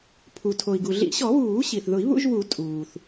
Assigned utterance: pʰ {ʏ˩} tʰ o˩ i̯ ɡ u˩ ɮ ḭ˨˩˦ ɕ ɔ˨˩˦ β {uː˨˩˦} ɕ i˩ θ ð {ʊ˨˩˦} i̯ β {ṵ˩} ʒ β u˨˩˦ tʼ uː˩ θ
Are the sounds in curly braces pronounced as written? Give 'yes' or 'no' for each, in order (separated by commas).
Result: no, yes, yes, no